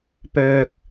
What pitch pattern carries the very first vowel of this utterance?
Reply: low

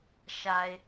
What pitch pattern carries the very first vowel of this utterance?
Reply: low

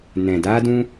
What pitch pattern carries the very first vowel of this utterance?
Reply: low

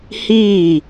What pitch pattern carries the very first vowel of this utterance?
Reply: falling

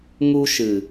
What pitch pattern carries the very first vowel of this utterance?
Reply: high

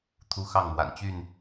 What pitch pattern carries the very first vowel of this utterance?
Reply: high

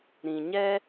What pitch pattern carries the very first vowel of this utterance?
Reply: low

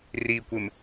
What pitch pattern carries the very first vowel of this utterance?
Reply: low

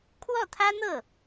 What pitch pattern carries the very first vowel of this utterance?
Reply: falling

